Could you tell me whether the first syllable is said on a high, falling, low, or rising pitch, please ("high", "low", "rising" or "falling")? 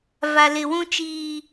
low